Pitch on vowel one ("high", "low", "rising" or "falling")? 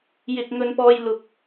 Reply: high